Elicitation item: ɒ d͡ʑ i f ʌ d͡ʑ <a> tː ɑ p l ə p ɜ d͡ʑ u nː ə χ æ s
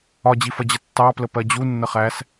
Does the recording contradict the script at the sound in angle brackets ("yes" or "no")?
yes